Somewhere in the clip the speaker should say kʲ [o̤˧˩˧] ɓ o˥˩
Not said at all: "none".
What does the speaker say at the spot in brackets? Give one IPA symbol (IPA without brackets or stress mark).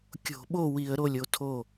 o̤˧˩˧